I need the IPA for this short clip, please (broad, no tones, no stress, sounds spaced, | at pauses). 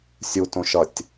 sʲ u t õ ʃ ʌ tʲ